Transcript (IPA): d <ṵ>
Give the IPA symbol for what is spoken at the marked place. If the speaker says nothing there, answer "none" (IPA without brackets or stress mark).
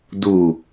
u